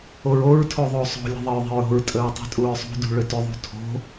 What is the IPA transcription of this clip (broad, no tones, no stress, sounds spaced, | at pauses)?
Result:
o ɹ o ɹ tʰ o ðˤ o sˤ o̤ lʲ ə̤ ðˤ ə ɹ ðˤ ə̤ ɹ o̤ ɹ tʼ ə ɹ tˤ ṳ tʼ u ɹ sˤ ṳ d ṳ ɭ ʏ t ʏ ðˤ ṳ tʰ o̤